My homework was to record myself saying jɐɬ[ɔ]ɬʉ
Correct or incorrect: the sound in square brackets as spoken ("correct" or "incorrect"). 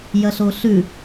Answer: incorrect